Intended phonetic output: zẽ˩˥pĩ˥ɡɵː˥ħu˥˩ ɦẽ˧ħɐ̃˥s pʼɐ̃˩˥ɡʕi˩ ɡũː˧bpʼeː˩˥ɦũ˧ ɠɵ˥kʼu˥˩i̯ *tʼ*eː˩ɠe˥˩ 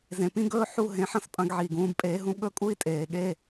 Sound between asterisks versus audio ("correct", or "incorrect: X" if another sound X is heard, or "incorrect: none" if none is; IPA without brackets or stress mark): correct